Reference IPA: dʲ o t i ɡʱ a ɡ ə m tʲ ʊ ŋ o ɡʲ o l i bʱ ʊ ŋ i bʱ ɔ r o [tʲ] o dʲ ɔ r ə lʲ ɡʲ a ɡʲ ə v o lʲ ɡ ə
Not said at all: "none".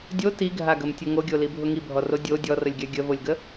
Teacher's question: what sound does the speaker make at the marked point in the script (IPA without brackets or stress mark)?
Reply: dʲ